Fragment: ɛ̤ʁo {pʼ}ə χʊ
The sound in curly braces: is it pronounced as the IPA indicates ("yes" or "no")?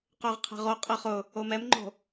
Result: no